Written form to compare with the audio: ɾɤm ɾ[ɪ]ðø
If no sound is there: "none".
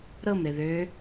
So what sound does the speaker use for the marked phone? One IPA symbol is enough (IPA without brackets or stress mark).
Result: ɪ